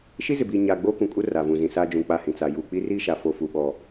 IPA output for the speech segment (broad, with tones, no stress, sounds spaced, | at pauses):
ʃ i˦ z ɪ˨ b iː˨ ɲ aː˨ ɡ͡b oː˦ k ũ˨ kʼ u˦ r a˨ v ũ˨ z ĩ˨ s aː˦ d͡ʒ ũ˨ k͡p a˦˨ h ĩ˨ t͡s a˨ j uː˨ k͡p i˦ r iː˦ ʃ a˨ f o˨ f u˨ ɓ ɔ˦˨